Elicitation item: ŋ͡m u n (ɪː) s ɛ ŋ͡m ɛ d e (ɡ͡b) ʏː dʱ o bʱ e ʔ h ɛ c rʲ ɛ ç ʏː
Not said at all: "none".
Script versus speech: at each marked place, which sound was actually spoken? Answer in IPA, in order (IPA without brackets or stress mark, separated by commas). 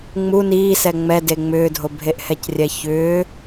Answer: iː, ŋ͡m